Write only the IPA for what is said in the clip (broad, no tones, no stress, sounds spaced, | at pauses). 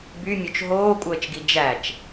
b y mʲ o t͡ʃ ɦ oː kʷʼ əː t͡ʃ ɡ i d͡ʒ æ t͡ʃ